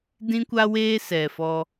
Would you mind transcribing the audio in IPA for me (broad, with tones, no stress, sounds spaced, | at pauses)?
d ĩ˦ kʷ a˦ w eː˦ s ɛ˨ f ɔ˦